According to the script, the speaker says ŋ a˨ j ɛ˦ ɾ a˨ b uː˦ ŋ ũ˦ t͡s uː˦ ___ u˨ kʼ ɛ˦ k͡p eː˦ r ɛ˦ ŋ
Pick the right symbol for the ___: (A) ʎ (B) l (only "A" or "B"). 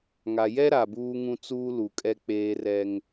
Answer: B